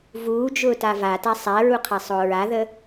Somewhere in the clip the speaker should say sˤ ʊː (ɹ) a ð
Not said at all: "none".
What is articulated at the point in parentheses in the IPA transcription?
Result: ɹ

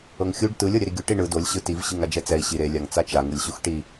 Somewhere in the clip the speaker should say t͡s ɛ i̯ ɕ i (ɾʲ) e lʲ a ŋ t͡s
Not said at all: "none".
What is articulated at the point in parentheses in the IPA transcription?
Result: ɾ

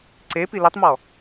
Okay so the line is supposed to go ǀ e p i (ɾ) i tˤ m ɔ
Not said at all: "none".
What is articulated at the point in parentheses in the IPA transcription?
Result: l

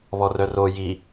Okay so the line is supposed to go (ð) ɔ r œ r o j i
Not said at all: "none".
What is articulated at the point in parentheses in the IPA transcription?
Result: β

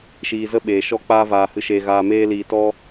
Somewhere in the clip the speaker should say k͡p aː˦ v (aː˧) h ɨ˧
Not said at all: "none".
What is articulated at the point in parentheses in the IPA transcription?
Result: aː˧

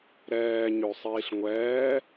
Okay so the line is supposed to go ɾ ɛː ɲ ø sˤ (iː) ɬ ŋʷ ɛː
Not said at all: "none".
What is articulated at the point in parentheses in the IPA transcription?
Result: iː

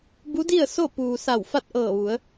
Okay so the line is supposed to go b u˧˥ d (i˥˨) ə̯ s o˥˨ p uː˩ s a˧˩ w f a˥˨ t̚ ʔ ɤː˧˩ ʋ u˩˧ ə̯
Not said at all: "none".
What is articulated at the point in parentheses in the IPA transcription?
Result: i˥˨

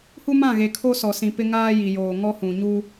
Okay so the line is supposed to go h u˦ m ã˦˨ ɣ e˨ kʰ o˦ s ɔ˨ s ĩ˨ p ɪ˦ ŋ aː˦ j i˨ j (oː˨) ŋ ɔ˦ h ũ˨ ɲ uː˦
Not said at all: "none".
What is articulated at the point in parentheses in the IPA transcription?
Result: oː˨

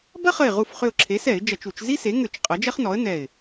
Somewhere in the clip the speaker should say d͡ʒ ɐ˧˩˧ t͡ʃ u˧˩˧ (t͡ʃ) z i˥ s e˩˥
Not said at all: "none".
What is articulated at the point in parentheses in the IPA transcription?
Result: t͡ʃ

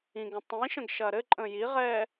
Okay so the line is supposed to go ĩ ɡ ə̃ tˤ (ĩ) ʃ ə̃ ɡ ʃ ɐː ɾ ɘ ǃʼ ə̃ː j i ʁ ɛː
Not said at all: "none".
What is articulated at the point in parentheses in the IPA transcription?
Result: ĩ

